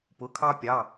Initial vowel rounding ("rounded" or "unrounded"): rounded